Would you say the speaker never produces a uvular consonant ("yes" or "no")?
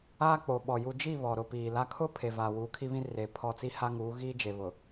yes